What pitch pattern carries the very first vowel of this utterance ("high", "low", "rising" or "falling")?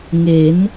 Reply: rising